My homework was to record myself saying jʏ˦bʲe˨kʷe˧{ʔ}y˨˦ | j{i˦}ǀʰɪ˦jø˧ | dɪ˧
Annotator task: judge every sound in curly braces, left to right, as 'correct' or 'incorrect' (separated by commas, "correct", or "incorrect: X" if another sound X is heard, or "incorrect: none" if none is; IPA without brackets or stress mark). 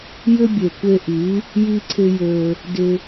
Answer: correct, correct